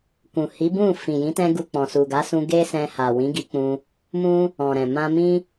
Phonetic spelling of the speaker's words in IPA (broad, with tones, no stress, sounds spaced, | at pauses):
k ũ˨ h i˨˦ b ũ˦˨ f ĩ˨ j ĩ˨˦ t ɛ̃˧ ɡ u˧ k͡p ɔ̃˨ s u˨ ɡ a˨˦ s ũ˧ ɡ e˦ s ɛ̃˧ h a˨ w ĩ˨˦ ɡ i˧ k͡p ũ˧ | m ũ˦ | ɔ̃˨ ɾ ɛ̃˨ m ã˧ m ĩ˦